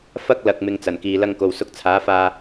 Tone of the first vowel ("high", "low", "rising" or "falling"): high